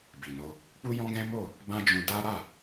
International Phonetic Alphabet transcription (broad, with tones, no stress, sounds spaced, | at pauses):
b i˨ n o˧ | k͡p u˦ j ɔ̃˦ ɡ ɛ̃˦ m o˦˨ | b ã˦ d͡ʒ ũ˧ d a˦ ɾ a˦˨